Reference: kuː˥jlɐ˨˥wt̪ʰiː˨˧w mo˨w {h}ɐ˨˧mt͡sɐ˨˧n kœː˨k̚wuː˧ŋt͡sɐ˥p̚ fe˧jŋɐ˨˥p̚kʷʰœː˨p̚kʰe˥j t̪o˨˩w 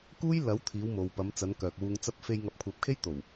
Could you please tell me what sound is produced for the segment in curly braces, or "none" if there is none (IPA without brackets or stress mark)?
p